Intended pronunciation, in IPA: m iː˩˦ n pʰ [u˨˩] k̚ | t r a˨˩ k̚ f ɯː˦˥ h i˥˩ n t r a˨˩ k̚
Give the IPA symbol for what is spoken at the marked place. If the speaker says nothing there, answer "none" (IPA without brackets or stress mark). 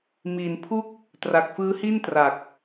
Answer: u˥˩